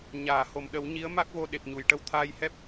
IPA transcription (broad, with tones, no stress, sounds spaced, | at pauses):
ɲ aː˨˩˨ h o˨˩˨ m ɗ ə˨˩˦ w ɲ i˧˥ ə̯ m a˦˥ k̚ v o˧ ɗ e˨˩ p̚ ɲ u˨˩˨ j ʈ ə˧ w t̪ʰ aː˧ j h ɛ˦˥ p̚